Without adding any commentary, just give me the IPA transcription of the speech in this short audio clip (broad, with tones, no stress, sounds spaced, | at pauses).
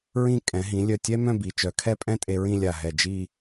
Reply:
ɹ ĩ˥˧ kʼ ɛ̃˩˧ ɦ ĩ˩˧ lʲ œ˧˩ tʲ ɛ˥ m œ̃˥˧ b i˩˧ t͡ʃ œ˩˧ kʰ ɛ˥˧ pʼ ɛ̃˥ tʼ e˧ ɹ ĩ˥˧ lʲ a˧˩ ɦ ɛ˧˩ d͡ʒ i˥˧